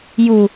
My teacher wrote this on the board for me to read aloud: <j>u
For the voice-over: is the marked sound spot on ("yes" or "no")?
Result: yes